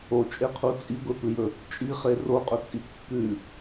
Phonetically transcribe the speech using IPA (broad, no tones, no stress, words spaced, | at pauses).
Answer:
ot͡ʃʼeqʰu t͡sʼiɡʷepɨjɵ | t͡ʃʼiχe roqʼɵt͡sʼi kːʉ